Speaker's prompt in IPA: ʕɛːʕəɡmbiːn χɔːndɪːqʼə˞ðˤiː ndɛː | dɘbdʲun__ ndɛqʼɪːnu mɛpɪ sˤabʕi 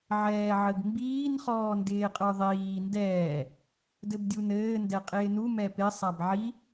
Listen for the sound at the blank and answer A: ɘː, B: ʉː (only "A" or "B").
A